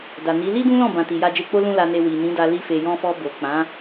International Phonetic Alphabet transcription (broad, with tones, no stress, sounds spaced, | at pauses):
d a˨ n i˨˦ l i˦ d ũ˦ l ɔ̃˦˨ b ã˨ t i˨ j a˧ d͡ʒ e˧ k͡p o˦ l ũ˧ l a˨ n e˨ w i˨ n ĩ˨˦ d a˧ l i˧ f e˨ j ɔ̃˧ f ɔ˧ b o˨ k͡p ã˨˦